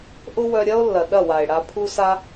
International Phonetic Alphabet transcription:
ʔ ʊ˦ w œ˧ ɾʲ ɐ˦ o̯ lː ɐ˨ ɗ ɐ˦˨ w a˨ e̯ ɽ a˧ pʰ u˦ s a˦

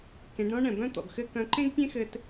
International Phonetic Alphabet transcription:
k ẽ˩˧ ɖ ɾ ɔ̃˥ ɳ ɛ̃˩ b œ̃˥ t̪ ɔ̰˩ ɡ x ɘ˥ k œ̃˧˥ ǃ ẽ˥ ɡ pʲ ẽ˥ x ɘ˧ t

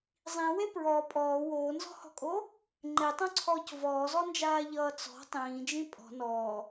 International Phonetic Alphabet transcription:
zˤ ĩ w e p ɹ ɔ pʼ ɔː w oː n z ɔ̤ h ɔ̤ kʼ o | ŋ͡ǃ e tˤ õ ǀʰ ɔː c v ɔː z ɔ n d͡ʒ aː ʎ ʌː t͡s ɔ̤ tˤ ĩː d͡ʒ ĩ pʼ ɔ̤ n ɔː

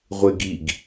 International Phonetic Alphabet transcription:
ʁʷ e ɡ i ɡ

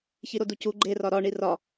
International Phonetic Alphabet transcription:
ç i ɾ o d u c u ɡ͡ǃ e r ɒ ɾ ɒ ɳ i r ɒ

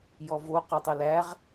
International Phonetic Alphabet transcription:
j ɔ v o q o tˤ o l æ ʁ

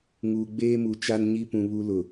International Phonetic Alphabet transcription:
ŋ uː˨ ɡ͡b eː˦ m u˨ t͡ʃ a˦ n ɲ i˦ p ũ˨ β u˦ l ʊ˨

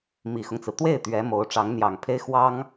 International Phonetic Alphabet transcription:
m i˨˩ x ʊ˦ ŋ t͡s ɹ̩˩ t̪ w e˥˩ ɪ̯ t̪ ɥ ɛ˧˥ m o˧˥ ʊ̯ ʈ͡ʂ ɑ˧˥ ŋ n̪ j ɑ˨˩ ŋ pʰ e˥ ɪ̯ x w ɑ˥ ŋ

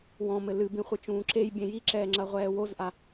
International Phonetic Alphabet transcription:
w ɔ̃ m ɘ l ɨ b ĩ χʷ ɨ t͡ʃ ũː ǁ e j bʲ ẽ j i ǁ ɛː ŋ͡ǁ ɐ ʁʷ ɛː w o z ʔ a

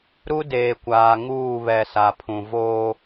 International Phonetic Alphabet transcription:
ɾ u˦ d eː˨ kʷ aː˨ ŋ uː˦˨ β ɛ˨ s a˨ pʰ ũ˨ v oː˦

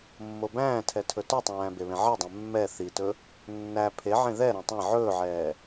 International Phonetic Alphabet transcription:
mː o b æ̃ː tʰ ɛ tʰ ɵ t ɵ tˤ æ̃ː b e β ẽ ʕ e dˤ ɛ̃ mː ɛ θ i t ɵ | nː æ pʰ e ʕ ẽ ð ɛ ɾ ɛ̃ tˤ ɛ̃ ʕ ɵː ʕ ɛː

